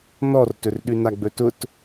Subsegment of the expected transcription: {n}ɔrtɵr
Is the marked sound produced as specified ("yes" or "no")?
yes